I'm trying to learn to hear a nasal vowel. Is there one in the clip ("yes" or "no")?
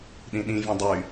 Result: yes